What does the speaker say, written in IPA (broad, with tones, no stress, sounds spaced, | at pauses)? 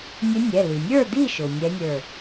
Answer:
nʲ ʊ˧˥ nʲ ɛ˩˧˩ l i˩ nʲ ə˞˥˨ d̪ i˥˨ ʃ ʊ˩ nʲ ɛ˧˥ nʲ ə˞˧˩